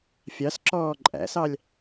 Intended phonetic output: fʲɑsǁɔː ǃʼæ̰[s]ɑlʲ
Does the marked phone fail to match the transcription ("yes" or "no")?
no